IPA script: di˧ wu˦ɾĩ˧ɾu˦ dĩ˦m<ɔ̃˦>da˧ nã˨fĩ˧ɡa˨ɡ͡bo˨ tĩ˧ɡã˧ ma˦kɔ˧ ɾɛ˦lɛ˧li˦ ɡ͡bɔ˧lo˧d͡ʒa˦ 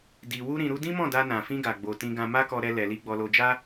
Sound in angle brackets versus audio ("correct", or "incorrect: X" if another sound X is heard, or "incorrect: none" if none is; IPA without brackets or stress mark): incorrect: ɔ̃˦˨